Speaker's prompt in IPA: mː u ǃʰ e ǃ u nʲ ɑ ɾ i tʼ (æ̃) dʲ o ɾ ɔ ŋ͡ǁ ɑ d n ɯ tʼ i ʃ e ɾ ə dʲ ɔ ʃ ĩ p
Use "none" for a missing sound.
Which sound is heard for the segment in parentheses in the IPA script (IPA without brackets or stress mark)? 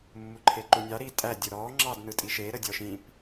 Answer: æ